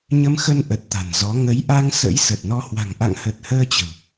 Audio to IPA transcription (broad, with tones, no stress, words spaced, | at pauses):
ɲə˧mxə˧nʔə˨˩t̚ t̪a̤˨˩nzɔ˨˦ ŋə˨˦jʔa˧ŋ sə̰˧˥jsə˨˩t̚nɔ˧ hwa̤˨˩ŋʔa̰˧˨ŋhə˨˩t̚həː˧ t͡ɕə̤˨˩w